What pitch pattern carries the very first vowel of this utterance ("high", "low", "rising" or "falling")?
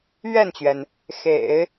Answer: falling